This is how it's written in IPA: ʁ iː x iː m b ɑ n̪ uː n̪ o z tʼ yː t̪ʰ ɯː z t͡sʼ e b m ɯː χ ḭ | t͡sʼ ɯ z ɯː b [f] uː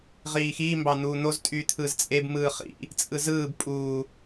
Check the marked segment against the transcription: incorrect: pʼ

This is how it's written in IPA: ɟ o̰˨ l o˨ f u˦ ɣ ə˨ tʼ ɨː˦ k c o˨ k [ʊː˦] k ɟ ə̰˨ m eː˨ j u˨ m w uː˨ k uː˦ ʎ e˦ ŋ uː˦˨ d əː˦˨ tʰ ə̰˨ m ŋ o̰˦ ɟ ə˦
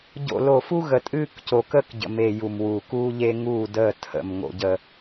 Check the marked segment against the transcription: incorrect: əː˦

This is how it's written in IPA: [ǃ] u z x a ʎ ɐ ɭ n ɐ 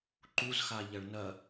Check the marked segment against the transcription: correct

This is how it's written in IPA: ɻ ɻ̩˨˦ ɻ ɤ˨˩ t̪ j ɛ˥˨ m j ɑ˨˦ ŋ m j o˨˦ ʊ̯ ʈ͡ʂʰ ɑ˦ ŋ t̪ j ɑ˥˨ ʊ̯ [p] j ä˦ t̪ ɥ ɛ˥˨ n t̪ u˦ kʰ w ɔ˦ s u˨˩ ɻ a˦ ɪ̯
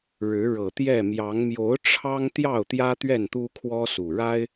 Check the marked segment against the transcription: incorrect: t̪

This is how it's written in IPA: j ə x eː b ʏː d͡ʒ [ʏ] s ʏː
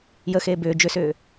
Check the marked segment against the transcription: correct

